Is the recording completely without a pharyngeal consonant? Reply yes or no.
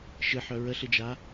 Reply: no